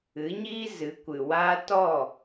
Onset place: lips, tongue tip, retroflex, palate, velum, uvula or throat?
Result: palate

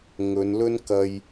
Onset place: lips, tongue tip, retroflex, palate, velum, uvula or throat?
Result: velum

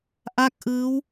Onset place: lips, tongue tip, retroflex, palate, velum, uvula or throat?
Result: throat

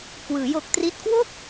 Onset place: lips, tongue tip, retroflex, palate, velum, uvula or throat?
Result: velum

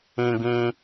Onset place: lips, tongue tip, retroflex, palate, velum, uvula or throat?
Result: velum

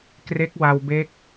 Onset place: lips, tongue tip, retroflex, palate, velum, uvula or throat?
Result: velum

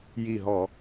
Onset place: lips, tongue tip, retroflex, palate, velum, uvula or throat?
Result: palate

